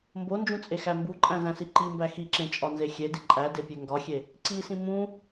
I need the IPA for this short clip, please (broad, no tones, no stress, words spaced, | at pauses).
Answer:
mbond͡ʒũt͡sʼexæ mbuǃʼæ̃zæ̃si ǃimbæ xiǁẽt͡ʃʼɒnze xʲedi ǃʼædepʲe ŋɡɒxʲe | ǀisĩ mũ